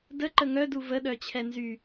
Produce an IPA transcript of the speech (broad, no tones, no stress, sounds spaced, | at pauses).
d ə ǃ ə ŋ œ d u v ə ɗ œ t͡ɕʰ ɛ n z y